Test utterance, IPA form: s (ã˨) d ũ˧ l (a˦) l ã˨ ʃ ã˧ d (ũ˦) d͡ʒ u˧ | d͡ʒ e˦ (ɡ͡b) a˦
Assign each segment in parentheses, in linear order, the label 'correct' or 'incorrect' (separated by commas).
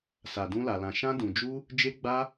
incorrect, incorrect, incorrect, correct